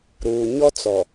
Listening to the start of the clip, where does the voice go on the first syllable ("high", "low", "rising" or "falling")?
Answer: low